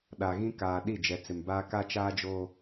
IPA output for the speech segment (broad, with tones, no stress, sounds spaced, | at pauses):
ɗ a˨ ɣ ĩ˦ k aː˨ ɗ i˦˨ d͡ʒ ɛ˨ t͡s ɪ˨ m b aː˦ k a˦ t͡ʃ aː˦ d͡ʒ oː˦